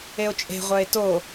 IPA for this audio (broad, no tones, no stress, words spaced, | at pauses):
eo̯t͡ʃʼe̤ʁʷœe̯ to